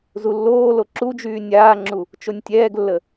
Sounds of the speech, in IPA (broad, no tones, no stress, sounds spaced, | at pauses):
z u lː oː l o ǁ u d͡ʒ yː nʲ aː ŋ͡ǁ u | t͡ʃ o nʲ tʲ ɛː ɡ lː ə